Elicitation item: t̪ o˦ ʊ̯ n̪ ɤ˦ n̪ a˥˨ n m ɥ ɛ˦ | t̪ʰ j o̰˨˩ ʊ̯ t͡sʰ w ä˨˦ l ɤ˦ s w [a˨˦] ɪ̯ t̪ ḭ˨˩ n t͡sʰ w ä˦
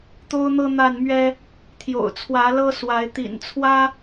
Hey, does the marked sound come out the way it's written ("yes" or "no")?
yes